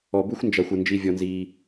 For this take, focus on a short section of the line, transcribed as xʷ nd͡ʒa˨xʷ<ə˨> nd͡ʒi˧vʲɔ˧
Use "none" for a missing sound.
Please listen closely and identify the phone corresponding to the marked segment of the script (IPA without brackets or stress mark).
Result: ə˨